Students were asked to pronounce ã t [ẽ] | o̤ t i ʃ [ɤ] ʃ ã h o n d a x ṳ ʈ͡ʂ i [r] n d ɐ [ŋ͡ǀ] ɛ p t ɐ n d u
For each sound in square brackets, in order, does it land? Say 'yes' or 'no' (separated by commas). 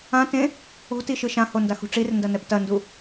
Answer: yes, no, yes, no